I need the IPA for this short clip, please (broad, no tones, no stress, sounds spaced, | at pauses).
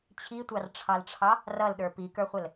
t͡ɕʰ i tʷ ɑ r ʈ͡ʂʰ ɑ l ʈ͡ʂʰ ɑ | r ʌ l ɗ ə˞ p i k ə˞ χʷ ə l